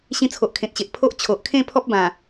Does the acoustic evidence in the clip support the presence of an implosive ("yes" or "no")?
no